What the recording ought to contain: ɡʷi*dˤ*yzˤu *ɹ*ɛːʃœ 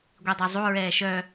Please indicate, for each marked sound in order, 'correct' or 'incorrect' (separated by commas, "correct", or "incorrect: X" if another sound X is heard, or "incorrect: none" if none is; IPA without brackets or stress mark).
correct, correct